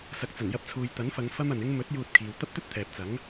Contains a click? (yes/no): no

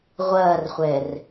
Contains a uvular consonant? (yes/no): yes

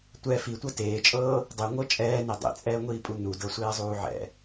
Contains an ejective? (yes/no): yes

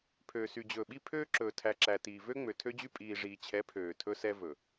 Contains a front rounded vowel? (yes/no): yes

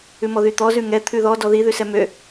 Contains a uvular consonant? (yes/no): no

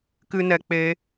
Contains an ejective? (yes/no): no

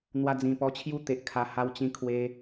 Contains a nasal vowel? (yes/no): yes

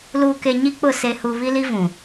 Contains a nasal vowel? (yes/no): yes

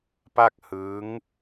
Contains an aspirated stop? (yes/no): no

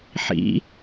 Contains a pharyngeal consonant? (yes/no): yes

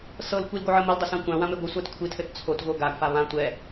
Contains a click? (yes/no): no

